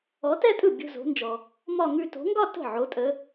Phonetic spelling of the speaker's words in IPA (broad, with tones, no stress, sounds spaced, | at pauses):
ɔ˨˦ t ɛ˥˧ tʼ ɯ˥˩ bʲ o̤˥˧ z o̤˨˦ n d͡ʒ ɔ˨ | m ɒ˥˧ ŋ ʉ˥˧ t o̤˨˦ ŋ ɡ ɒ˥˧ t ə̤˥˩ ʕ o˨˦ tʼ ə˨˦